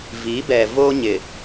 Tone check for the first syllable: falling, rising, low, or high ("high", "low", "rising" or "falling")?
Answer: rising